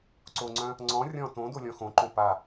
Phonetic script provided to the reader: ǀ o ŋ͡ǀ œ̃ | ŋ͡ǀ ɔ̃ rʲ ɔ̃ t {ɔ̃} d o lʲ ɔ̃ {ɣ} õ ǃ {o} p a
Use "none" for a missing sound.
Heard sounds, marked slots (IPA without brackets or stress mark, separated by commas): õ, x, õ